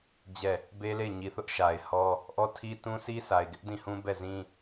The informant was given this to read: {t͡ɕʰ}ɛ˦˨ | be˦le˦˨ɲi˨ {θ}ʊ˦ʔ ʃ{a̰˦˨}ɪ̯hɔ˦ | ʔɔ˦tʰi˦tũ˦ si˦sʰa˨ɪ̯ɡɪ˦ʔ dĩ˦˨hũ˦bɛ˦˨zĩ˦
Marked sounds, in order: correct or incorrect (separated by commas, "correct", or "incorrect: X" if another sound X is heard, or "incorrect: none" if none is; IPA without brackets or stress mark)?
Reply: incorrect: d͡ʑ, correct, incorrect: a˨